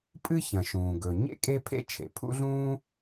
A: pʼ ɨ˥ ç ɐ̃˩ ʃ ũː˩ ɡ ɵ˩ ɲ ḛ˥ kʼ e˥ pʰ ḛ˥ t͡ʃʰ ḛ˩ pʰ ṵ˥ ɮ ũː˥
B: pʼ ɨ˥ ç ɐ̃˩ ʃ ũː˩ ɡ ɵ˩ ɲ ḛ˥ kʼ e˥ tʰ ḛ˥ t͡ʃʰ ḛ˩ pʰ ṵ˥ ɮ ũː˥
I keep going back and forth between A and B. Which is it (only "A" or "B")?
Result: A